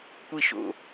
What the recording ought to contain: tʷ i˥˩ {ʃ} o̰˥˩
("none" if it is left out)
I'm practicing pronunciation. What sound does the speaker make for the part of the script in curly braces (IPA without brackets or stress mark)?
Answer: ʃ